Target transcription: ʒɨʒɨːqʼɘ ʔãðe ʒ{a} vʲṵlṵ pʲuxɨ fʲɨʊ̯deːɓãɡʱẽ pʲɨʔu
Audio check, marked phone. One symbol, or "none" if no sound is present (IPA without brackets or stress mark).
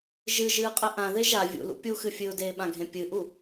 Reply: a